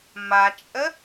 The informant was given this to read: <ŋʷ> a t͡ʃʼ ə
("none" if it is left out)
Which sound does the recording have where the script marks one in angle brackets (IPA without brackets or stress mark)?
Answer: m